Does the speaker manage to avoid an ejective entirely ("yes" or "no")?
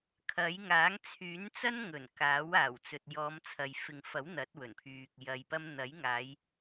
yes